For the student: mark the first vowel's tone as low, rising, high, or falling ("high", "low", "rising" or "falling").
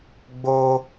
high